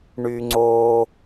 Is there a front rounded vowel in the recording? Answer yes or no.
yes